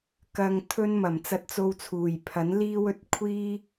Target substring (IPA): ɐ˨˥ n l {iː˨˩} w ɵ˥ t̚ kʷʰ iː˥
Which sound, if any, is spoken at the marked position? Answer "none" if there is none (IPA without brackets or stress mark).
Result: iː˥